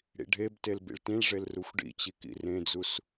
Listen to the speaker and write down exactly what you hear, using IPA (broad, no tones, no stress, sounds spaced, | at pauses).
ɽ ḭ ɖʱ e b t e l b ḭ ɭ t ĩ ɭ ʐ e l r u xʷ ɖ ḭ t͡ɕ i k ḭ r ẽ d͡z u s